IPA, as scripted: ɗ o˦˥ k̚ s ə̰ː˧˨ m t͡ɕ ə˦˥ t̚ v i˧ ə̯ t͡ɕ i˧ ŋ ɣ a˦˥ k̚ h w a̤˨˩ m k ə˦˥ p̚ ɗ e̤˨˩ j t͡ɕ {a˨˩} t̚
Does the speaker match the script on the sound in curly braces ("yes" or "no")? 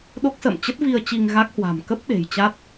no